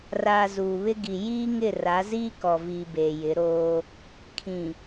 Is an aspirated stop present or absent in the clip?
present